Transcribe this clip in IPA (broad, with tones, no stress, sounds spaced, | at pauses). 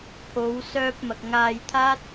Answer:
pʰ o˨˧ w s œː˧ p̚ m ɐ˨ k̚ ŋ aː˧ j t̪ʰ aː˥ t̚